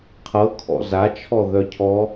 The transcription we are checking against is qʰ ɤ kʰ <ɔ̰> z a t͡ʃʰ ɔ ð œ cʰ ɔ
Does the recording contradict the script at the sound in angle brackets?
no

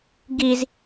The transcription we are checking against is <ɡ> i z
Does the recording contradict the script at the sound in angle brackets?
no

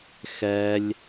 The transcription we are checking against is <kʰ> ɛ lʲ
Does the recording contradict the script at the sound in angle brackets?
yes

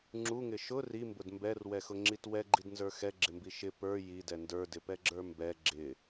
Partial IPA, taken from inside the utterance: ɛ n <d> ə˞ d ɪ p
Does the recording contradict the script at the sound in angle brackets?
no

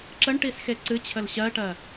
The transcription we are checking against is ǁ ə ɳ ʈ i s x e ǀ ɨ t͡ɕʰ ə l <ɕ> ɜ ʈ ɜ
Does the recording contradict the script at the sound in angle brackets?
no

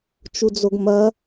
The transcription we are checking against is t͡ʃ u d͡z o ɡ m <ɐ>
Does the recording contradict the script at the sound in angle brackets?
no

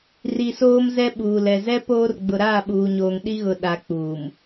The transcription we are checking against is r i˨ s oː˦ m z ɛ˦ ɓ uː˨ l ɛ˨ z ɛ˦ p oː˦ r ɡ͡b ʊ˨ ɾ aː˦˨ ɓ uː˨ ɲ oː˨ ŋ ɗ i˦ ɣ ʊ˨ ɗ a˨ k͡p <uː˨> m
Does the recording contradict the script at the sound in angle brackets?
no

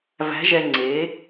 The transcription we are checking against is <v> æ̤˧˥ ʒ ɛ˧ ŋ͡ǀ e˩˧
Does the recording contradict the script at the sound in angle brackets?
no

